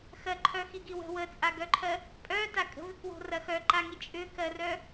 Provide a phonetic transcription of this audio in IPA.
x ɜ ǃʰ œ x i ɡ i w ə̤ w ə t͡sʼ a ɡ œ ǃʰ ɜ | pʼ œ t a kʼ ə̤ v ʏ k w o̤ r ɐ x œ ǃ a ŋ i t͡ʃʼ ʏ k ɜ r œ

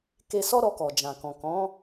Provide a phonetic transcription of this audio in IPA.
k e˧ s ɔ˦ ɾ ɔ˧ k ɔ˨ d͡ʒ ã˨ k ɔ̃˨ k ɔ̃˨˦

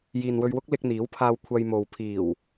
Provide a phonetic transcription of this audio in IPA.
j iː˨ n w ɵ˧ ɥ w ʊ˥ k̚ l ɪ˧ k̚ n̪ iː˨˥ w pʰ aː˧ w kʷʰ ɐ˧ j m o˨ w pʰ iː˨˩ w

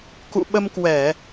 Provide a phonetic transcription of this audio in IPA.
k ṵ˧˨ ɓ ə˧ m k w ɛ˧˩˨

